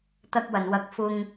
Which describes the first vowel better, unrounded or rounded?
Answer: unrounded